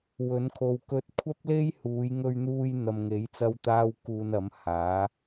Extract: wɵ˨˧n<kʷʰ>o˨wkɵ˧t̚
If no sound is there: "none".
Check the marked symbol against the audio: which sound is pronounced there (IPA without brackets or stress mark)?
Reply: kʰ